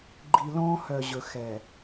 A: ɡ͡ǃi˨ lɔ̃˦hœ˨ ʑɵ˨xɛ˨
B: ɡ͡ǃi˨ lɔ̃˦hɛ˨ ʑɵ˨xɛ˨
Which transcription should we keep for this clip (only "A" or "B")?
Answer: A